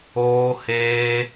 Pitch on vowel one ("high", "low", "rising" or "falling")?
high